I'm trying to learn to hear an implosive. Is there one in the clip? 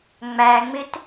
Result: no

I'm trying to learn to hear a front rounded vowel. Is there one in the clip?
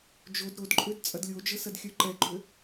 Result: yes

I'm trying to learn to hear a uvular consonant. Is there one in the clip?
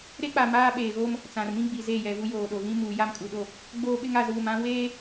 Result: no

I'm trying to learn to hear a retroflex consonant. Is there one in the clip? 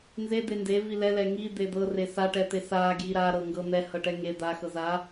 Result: yes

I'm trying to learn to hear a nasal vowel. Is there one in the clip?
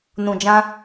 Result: yes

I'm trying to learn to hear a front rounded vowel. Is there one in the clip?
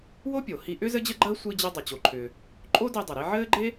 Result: yes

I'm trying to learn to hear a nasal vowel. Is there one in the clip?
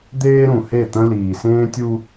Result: yes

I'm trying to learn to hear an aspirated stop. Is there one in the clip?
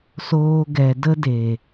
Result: no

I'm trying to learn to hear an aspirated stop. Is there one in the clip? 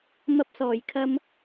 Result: yes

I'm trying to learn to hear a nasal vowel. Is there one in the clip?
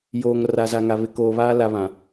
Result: yes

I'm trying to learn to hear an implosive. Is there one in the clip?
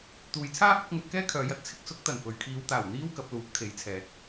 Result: no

